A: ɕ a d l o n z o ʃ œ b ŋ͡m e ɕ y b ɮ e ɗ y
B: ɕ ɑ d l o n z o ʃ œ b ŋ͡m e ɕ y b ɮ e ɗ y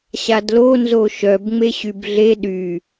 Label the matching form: A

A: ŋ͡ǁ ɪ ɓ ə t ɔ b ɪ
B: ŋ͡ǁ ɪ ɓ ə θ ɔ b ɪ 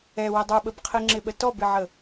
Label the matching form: A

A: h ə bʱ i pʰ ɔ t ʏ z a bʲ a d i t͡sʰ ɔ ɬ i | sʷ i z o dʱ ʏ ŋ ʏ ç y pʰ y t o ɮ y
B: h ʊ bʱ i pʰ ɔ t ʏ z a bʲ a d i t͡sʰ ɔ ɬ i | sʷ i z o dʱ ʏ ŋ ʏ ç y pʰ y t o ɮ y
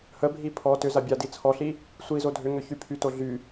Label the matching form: A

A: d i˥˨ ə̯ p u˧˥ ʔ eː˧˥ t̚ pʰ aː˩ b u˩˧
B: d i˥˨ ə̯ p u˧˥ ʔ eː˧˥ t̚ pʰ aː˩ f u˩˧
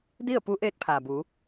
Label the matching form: A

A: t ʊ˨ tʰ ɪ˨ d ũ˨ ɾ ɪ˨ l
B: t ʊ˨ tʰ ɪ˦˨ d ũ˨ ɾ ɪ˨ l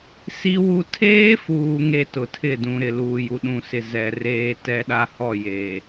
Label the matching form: B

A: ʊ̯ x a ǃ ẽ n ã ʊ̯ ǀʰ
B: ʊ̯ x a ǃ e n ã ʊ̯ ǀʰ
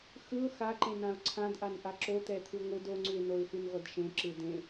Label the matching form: A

